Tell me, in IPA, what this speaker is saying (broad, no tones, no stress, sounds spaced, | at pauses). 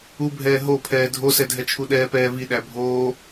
u bʱ ɛː ɦ o pʰ ɛː dʱ o s ɛ dʱ ɛ t͡ʃʰ u ɗ ɛː p ɛː v i ɗ æ bʱ oː